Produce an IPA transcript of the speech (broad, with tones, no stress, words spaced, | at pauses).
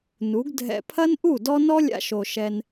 nu˨˦ɡ dʱɛ̰˧ pʰɐ˦nʔu˦˨ dɔ˦ nɔ˦lʲa̰˧ʃo˨ ʃɛ˧n